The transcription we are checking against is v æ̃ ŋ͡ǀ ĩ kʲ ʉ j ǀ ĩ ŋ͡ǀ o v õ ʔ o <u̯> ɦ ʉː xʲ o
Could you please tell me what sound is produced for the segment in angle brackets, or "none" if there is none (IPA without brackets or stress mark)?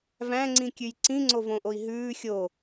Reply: i̯